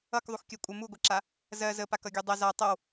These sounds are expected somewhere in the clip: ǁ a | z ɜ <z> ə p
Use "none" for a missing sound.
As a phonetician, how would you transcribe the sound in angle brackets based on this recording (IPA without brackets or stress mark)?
z